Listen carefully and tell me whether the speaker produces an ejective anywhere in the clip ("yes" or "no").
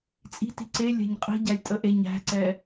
yes